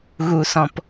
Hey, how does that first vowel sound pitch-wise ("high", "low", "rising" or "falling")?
low